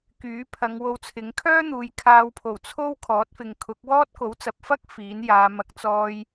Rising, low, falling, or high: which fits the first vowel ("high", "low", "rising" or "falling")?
rising